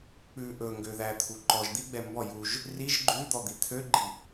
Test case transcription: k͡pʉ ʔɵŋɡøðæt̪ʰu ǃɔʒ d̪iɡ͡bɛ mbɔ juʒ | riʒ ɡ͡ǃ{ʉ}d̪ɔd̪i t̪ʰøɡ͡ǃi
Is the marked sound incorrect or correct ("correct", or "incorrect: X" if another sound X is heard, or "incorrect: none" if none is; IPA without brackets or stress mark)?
correct